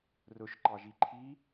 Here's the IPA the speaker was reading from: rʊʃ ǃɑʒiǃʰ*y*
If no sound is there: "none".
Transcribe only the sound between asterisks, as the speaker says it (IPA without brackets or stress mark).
i